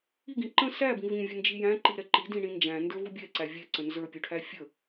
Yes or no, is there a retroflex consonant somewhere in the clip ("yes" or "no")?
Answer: yes